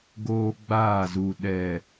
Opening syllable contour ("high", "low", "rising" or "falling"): high